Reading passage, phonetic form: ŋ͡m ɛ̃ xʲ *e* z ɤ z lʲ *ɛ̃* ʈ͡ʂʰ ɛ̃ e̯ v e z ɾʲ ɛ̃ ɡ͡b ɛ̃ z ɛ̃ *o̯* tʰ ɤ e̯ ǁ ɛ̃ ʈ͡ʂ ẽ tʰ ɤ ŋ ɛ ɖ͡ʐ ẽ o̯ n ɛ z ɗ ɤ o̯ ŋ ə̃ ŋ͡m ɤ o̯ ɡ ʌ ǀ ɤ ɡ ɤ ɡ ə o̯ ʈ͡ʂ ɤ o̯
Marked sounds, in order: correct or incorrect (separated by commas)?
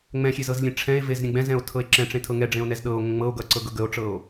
correct, incorrect, correct